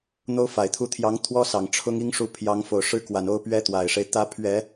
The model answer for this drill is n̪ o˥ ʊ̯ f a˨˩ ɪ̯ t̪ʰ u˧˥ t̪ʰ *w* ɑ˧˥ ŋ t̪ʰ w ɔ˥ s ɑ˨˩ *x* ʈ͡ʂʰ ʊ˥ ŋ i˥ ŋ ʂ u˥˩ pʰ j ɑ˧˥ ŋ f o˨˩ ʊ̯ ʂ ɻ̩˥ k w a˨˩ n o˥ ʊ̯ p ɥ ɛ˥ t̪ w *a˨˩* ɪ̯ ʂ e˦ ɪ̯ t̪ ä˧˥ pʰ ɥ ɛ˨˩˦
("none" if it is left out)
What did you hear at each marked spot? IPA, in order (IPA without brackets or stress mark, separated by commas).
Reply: j, ŋ, a˨˩